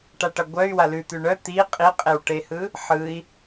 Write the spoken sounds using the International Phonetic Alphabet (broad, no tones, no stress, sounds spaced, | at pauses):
ʈ a ʈ ʌ ɡʷ œ y̯ w a l ʉ t̪ ʉ ɳ œ t̪ i qʼ i qʼ e w ʈ e h ɯ | ħ ɯ i̯